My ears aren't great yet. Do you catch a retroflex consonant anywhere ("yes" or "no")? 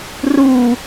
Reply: no